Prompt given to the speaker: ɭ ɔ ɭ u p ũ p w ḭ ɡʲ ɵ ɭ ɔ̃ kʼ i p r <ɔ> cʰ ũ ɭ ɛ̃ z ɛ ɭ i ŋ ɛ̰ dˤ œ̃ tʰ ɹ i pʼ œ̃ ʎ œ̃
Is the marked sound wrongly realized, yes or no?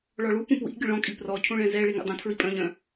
no